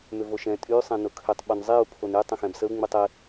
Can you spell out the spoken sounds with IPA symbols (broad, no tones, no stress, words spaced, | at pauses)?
mʏvoʃɛ̃ tʼy sˤɛ̃nʊkʰʏtˤ ɓunzˤiu̯ pʰony tˤə̃xɛ̃bsəu̯ ŋ͡mytˤɪ